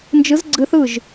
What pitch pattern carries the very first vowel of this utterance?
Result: rising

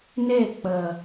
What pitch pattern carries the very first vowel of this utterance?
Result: falling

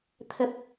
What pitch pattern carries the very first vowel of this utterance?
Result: high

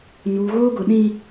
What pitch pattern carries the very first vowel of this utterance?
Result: low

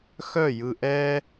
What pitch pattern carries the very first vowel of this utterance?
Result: falling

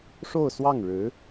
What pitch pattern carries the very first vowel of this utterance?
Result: falling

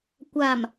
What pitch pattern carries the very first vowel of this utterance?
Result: low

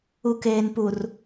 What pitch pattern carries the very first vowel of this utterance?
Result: low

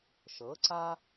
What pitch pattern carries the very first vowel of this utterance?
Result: rising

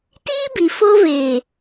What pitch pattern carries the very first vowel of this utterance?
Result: high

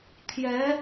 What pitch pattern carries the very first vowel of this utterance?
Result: rising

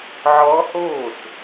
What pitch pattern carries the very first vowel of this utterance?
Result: rising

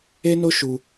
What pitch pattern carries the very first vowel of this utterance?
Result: high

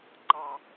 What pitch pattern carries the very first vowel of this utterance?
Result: low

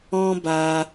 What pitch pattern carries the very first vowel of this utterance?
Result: high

